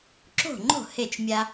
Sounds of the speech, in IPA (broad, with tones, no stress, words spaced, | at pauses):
ǁo̤˥˩ŋ͡ǃo̤˥˩ he˥˩t͡ʃmʲa˦